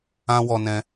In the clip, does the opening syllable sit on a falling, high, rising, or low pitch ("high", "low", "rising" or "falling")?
high